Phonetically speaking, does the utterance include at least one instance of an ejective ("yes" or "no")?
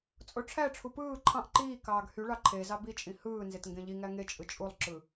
yes